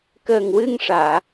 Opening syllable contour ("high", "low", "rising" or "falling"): low